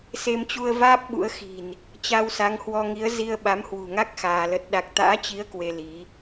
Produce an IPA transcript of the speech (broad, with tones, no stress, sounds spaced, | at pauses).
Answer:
s e˧ m t͡ɕ u˧ ə̯ v aː˦˥ p̚ ɓ ṵ˧˥ ə̯ x i̤˨˩ n | t͡ɕ a˧ w s a˨˦ ŋ h w ɔ˧ ŋ i˨˦ ə̯ z i˧ ə̯ ɓ a˨˦ m h w ṳ˨˩ ŋ a˦˥ k̚ x aː˧ l ə˦˥ t̚ ɗ a˦˥ k̚ t̪ a̰ː˧˥ t͡ɕ i˨˦ ə̯ k w e˧ l i˨˦